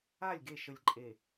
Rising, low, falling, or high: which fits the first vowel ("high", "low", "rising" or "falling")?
falling